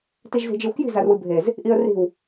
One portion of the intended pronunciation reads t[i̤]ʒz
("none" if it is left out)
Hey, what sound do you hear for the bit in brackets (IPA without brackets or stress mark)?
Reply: i